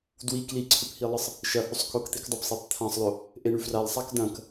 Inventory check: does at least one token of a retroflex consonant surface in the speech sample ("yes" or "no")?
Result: yes